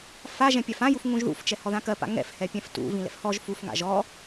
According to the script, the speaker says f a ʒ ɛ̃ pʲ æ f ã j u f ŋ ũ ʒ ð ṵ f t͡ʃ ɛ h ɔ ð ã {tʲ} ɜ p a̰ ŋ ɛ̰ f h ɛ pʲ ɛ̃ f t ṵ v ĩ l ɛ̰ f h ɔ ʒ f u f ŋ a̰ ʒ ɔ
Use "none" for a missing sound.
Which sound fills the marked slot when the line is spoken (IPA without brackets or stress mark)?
k